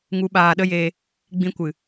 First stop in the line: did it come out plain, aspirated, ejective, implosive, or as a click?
implosive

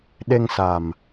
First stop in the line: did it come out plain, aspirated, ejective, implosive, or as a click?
implosive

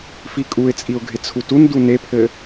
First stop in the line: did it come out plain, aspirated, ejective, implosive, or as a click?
ejective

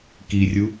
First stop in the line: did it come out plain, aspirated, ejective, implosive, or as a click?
plain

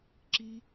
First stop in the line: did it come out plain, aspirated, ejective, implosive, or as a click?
click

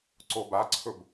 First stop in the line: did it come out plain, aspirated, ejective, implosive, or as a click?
click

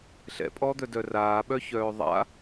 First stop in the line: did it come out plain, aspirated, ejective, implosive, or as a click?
ejective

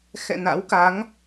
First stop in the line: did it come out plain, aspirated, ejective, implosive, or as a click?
plain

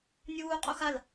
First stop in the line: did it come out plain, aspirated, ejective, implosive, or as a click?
ejective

